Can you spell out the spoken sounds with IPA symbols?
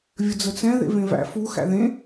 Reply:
vʲ ə d͡z ə t͡s ɛ̃ ð ḛ v ẽ v æ̰ f u x æ̰ ð ẽ

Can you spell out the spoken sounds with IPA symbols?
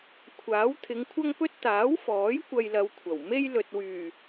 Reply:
kʷʰ aː˨˥ w t̪ʰ ɪ˨˧ ŋ kʷʰ ɐ˥ ŋ p ɵ˥ t̚ t̪ aː˨˥ w f ɔː˨˥ j kʷ ɐ˧ j l ɐ˨˧ w kʷʰ ɐ˨˩ w m e˥ j l ɵ˨ t̚ w yː˨˩

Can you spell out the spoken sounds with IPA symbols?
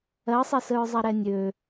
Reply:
ɜ sˤ ɛ s ə ɹ zˤ ɛ ɾ ɛ nʲ ø

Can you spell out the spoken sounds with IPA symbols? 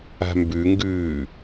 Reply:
a̤ m b ʉ ŋ ɡ ʉː

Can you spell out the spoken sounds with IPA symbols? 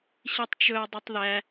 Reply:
ɕ i tˤ t͡ʃ ɵ ɐ̯ dˤ ʉ tˤ ð æ

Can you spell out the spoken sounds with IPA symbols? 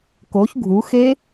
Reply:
k o ç ɡʱ u x e

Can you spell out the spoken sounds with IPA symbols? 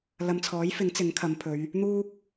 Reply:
l ɐ˨ m t͡sʰ ɔː˨˥ j f ɪ˨˥ ŋ t͡s ɪ˨˥ ŋ kʰ ɐ˨˧ m pʰ ɵ˨˧ ɥ | n̪ uː˥ k̚

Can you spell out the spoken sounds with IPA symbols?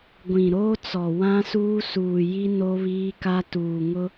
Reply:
ɡʷ ĩ˨ ɾ oː˦ t͡s ɔ˨ w ã˦ s uː˦ s uː˨ j i˦ n o˦ β iː˦ k a˦ t uː˨ ŋ ʊ˦

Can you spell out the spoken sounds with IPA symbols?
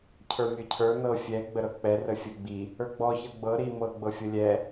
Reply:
cʰ ə˞ mʲ ə˞ cʰ ə˞ n ɤ fʲ ɛ ɡ͡b ə ɾ ɤ k͡p ɛ r ə fʲ ə ɡ͡b i | ə˞ ɡ͡b ɔ ç ɤ ɡ͡b ɤ ɾ i m ɤ ɡ͡b ɤ fʲ ɤ lʲ ɛ

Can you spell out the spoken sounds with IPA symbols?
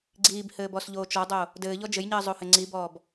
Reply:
ɡ͡ǀ iː b h ɘː b ɔ s ʎ oː t͡ʃ ɔ dˤ o | d ɘː ʎ ɔ d͡ʒ ɘ j ɲ ɘː zˤ o h ɘ ŋ͡ǀ i b ɔː b

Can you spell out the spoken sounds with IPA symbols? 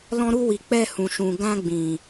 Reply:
l ɔ̃˧ ɾ u˧ w i˨ k͡p ɛ˧ h ũ˨ ʃ ũ˨ ɡ ã˧ ɡ͡b ĩ˨

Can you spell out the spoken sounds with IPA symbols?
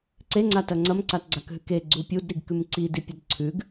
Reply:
ǀ e ŋ͡ǀ a t ɐ ŋ͡ǀ ɐ m ǀ a t ɡ͡ǀ a k ɦ ʉ k e ɡ͡ǀ u pʲ u d ɾ i ɡ k ʉ m ǀ i d i pʲ ɐ d ǀʰ ʉ ɡ

